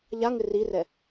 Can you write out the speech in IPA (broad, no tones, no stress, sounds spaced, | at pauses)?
ʎ a ŋ ɪ r i r ɛ